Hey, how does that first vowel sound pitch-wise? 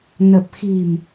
low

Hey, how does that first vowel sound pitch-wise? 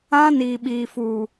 high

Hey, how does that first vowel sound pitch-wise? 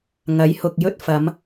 rising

